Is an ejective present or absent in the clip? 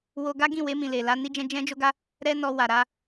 absent